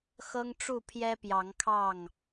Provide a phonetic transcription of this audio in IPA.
x ɤ˦ ŋ ʈ͡ʂ u˥˨ pʰ j ɛ˦ p j ɑ˨˦ ŋ kʰ ɑ˥˨ ŋ

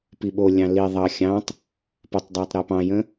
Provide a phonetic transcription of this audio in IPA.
p i ɓ o lʲ ɑ̃ l i ðˤ ɑ xʲ ɑ̃ tˤ | p ə tˤ dˤ ɑ tˤ ɾ ɛ p ɑ̃ j ə̃

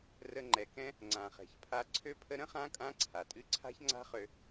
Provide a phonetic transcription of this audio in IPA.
r ə˧ ŋ͡ǃ ɛ˨ k ɛ̃˦ | ŋ͡ǀ ã˨ χ ɛ̤˨ ç pʰ a˧ ǀʰ ø˧ pʰ ə˧ ɾ ə̃˦ χ ã˦ kʼ ã˦ ǀʰ a˨ tʼ ɨ˦ ǀʰ a̤˦ ç ŋ͡ǀ a̤˦ χ ø˧

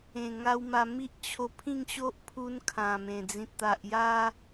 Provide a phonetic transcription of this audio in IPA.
ẽ˨˩ ŋ a˧ w m a˧ m i˦ ʔ t͡ɕʰ o˧ pʰ ĩ˥˧ ŋ ɕ o˦ ʔ pʰ u˧ n kʰ ã˨˩ m ẽ˨˩ d͡z ĩ˨ t̚ t̪ a˨ ʔ j a˧

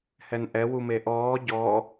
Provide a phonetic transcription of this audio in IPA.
h ɛ n ʔ ɛ w u m e ʔ ɔː ɟ ɔ

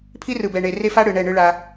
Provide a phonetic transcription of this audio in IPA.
pʰ i˦ r ɯ˨ b ɛ˨ ɳ e˨ r e˦ f a˦ ɽ ɯ˨ ɳ ɛ˦˨ ɳ ɯ˦ ɭ a˦

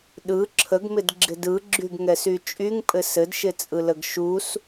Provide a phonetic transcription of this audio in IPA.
ɗ ɯ ǁʰ ə ɡ m ɪ d ɡ͡ǁ ɪ d ɯ ɡ͡ǁ y ɡ ŋ ɛ s y t͡ʃʼ y ŋ pʼ ɘ s ɘ d ʃ ɪ t͡sʼ ɯ l ə ɡ ʃ u s

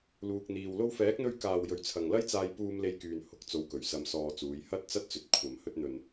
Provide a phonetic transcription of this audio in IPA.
l uː˧ k̚ n̪ iː˧ w l o˧ w f ɛː˨˥ k̚ n̪ ɵ˧ ɥ k aː˨ w j ɵ˨ ɥ t͡sʰ ɐ˨ ŋ l ɐ˥ j t͡s aː˧ j p uː˧ m l e˧ j k yː˨ n h ʊ˨˥ k̚ t͡s o˨˧ w k ɵ˨˩ ɥ s ɐ˧ m s ɔː˧ t͡s uː˨˧ j h ɐ˥ t̚ t͡s ɐ˥ t̚ t͡s ɵ˨ t̚ kʷʰ ɐ˨ m h ɵ˧ t̚ n̪ ɵ˨ n

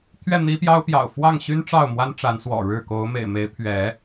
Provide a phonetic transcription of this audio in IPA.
t̪ʰ ɥ ɛ˥˨ n̪ i˦ p j ɑ˦ ʊ̯ p j ɑ̰˨˩ ʊ̯ f w ɑ˥˨ ŋ ɕ y˦ n ʈ͡ʂ ɑ˥˨ ʊ̯ m w a˦ n ʈ͡ʂ a˨˦ n s w ɔ̰˨˩ ɻ ɻ̩˥˨ k o˨˦ ʊ̯ m ḛ˨˩ ɪ̯ m e˨˦ ɪ̯ pʰ ɥ ɛ˨˦

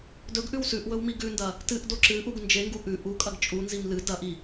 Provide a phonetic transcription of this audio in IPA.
d ɵ ɡ ʔ ʉ w s ʉ ʔ w ɵ w m i ɡ ʉ n d ɐ | t ɨ ʔ d o ǁ ɨ ʔ u ɡ n d͡ʒ e ŋ ɡ u ʔ ʉ ʔ u kʼ ɐ ɡ t͡ʃʼ u n z i m l ɨ d ɐ ʔ i

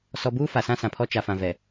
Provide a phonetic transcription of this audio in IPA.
s ɔ˨ b uː˦ f a˨ s ã˦ s ã˨ pʰ ɔ˦ t͡ʃ a˨ f ã˨ v ɛ˨

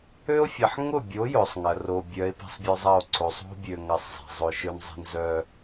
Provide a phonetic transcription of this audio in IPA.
ø˦ o̯ fʲ ɐ˨ ħ ŋ ʊ˦˨ bʲ o˨˦ j ʊ˨ sˤ ŋ ɐ˨ r o˨ bʲ œ˨˦ e̯ p i̤˨ sˤ bʲ œ˦ zˤ ɐ˦˨ o̯ ǀ o˨ sˤ o̤˦ bʲ ø˨ ŋ ɐ˨ sˤ zˤ i̤˨ zˤ ʊ˦ ʃ ø˦ n zˤ i̤˦ n z œ˦

